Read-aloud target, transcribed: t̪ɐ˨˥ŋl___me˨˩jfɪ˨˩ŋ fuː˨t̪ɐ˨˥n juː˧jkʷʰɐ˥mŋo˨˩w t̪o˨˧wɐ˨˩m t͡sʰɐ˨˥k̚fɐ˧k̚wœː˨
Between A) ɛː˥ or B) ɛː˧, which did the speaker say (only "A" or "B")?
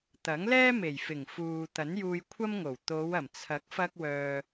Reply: A